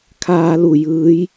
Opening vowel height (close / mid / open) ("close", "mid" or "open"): open